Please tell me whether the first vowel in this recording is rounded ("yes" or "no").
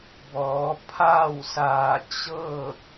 yes